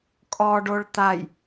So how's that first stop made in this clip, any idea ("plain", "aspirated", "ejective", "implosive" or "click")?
ejective